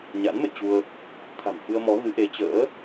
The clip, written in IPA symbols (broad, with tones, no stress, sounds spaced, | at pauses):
ɲ a̰˧˥ n m ḛ˧˨ t͡ɕ u˧ ə̯ | t̪ʰ a̤˨˩ m f ɨ˧ ə̯ m ɔ˨˦ ɣ ɨ˨˦ ʔ e˨˦ t͡ɕ ə̰ː˧˥